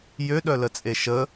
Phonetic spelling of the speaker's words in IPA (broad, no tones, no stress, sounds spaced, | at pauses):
j ø ɗ œ l ə t͡sʼ e ʃ ə